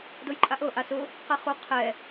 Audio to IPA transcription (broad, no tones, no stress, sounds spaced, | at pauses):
d o j ǃʼ a ʔ ɤ ʔ a s ʊ | q ɛ χ u qʰ ɛ